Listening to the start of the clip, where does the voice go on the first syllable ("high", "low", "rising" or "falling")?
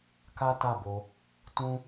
high